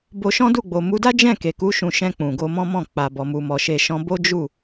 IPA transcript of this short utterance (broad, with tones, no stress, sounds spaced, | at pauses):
b o˧ ʃ ɔ̃˦ d u˦˨ ɡ͡b o˨ m u˨˦ d a˦ d͡ʒ ɛ̃˦˨ k e˨ k u˨˦ ʃ ũ˧ ʃ ɛ̃˧ k͡p ũ˨ ɡ o˧ m ɔ̃˦ m ɔ̃˦˨ k͡p a˨ b ɔ˨ m u˨ m ɔ˨ ʃ e˨ ʃ ɔ̃˨˦ b o˦ d͡ʒ u˦˨